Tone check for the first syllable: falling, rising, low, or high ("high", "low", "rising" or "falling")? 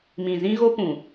low